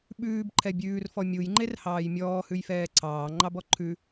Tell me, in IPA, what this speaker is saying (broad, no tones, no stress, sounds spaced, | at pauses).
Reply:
ɓ ʉː b ǃʰ ɛ bʲ ʉː r f ɔ mʲ u j ŋ͡ǃ e r h ɑː j mʲ ɔː h ʉ j f ɛː ǀʰ ɑː ŋ͡ǃ ɑ b ɔ ǃʰ ʉ